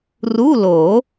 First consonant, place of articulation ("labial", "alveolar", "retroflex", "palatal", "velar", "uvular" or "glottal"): alveolar